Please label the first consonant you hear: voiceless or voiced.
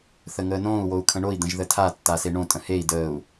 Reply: voiceless